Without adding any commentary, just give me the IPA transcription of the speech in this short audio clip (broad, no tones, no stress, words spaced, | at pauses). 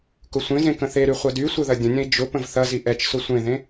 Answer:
kʊsʷẽzẽ kə̃θeɾy χʷɐdysʷə ðɐdʲə̃nʲə̃i̯ d͡ʒʊpə̃v θɐzi ʔɛt͡ʃsʊ sʷẽðẽ